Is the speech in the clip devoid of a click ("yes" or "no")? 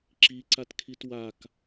no